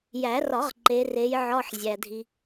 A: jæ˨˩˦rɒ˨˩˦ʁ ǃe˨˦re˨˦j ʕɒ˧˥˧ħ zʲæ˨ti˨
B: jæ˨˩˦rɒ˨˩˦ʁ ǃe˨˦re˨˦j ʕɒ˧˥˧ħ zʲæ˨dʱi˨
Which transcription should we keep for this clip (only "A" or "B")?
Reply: B